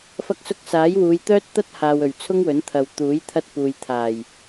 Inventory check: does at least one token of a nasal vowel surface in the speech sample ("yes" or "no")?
no